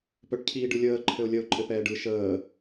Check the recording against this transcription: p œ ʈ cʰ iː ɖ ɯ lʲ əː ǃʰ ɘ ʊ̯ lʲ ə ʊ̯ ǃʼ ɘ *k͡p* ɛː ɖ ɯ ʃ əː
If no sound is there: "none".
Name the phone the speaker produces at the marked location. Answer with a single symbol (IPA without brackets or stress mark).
p